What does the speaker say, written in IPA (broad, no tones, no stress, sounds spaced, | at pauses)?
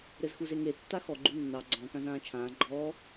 ɾ ɘ z x u z e ŋ e tː a x ɔ ɡ͡ǃ u nː ɑ ɡ͡ǀ ɔ̃ k ã z ãː t͡ʃʰ ãː ɡ͡ǃ ɔː